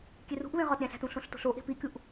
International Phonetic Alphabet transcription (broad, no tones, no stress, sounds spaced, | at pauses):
kʲ e r ṳ ʔ β ẽ ʁ ɒ t ɾʲ æ̃ ɬ æ̤ t ũ ɬ õ ɬ t o̤ ɬ o ʔ e̤ p i kʲ u ʔ